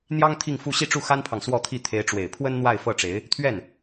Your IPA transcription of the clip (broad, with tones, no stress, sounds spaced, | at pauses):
n̪ j ɑ˥ ŋ t̪ʰ i˥˧ ŋ f u˥˧ ɕ i˥˧ ʈ͡ʂ u˥˩ x a˥ n pʰ ɑ˨ ŋ s w ɔ˥˧ t̪ʰ i˥˩ t̪ʰ e˧˥ ɪ̯ ʈ͡ʂ w e˨˩ ɪ̯ pʰ w ə˥ n n̪ w a˥˧ ɪ̯ f ɤ˥˩ ʈ͡ʂ e˧˥ ɪ̯ | t̪ʰ ɥ ɛ˥˩ n